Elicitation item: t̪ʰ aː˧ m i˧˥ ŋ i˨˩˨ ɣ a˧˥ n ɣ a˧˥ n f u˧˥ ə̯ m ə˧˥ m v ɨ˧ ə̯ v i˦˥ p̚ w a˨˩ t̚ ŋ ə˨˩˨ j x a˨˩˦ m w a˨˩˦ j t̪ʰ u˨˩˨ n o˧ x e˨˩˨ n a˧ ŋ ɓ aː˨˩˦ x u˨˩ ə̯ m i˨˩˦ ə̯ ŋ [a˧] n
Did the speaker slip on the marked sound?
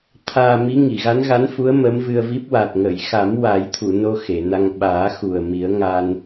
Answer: no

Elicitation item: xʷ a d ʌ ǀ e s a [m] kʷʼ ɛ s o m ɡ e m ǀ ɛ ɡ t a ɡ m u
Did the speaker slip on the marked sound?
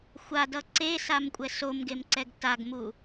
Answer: no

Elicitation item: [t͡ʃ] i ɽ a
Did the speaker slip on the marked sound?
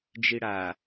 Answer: yes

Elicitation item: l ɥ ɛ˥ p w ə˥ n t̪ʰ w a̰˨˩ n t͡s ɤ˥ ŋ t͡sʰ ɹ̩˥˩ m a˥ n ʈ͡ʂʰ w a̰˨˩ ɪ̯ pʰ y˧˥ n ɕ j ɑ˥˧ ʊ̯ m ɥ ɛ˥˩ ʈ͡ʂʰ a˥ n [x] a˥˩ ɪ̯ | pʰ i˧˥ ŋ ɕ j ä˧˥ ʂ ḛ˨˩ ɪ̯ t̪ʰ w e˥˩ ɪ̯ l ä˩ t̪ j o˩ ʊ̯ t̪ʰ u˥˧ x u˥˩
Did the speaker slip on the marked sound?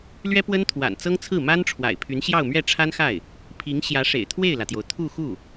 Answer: no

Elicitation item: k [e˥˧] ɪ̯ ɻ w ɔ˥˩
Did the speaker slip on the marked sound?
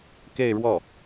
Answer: no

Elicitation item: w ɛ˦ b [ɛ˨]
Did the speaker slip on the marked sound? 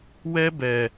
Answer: no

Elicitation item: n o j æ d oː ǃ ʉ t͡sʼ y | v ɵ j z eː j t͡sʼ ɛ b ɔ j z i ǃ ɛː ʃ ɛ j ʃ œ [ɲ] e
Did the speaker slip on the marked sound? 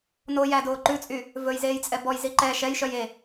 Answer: yes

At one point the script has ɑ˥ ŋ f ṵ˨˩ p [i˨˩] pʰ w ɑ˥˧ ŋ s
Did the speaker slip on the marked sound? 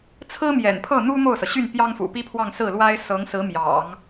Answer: yes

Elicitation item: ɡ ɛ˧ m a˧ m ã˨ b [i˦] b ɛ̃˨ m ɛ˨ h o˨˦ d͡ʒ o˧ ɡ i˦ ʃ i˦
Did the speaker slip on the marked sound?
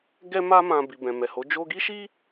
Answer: yes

